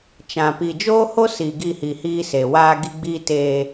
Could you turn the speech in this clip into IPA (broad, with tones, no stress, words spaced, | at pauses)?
t͡ʃã˨pi˨ d͡ʒoː˦ho˦ si˨ɡi˦˨hi˨hiː˦ se˨ waː˦ɡi˦ɡ͡biː˦ teː˦